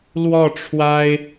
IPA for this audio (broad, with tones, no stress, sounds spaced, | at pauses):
l w ɔ˥˩ ʈ͡ʂʰ w a˥ ɪ̯